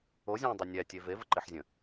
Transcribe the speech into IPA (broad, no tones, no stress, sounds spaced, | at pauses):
o zʲ ɔ̃ː dˤ o nʲ æ tʲ e v e v ə ǃ e ħ zʲ ə̃